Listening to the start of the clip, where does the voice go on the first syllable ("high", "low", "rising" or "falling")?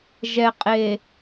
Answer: low